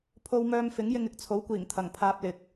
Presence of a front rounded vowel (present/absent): present